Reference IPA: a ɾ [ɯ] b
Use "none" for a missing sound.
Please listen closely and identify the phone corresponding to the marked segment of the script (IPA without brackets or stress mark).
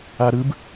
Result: ɯ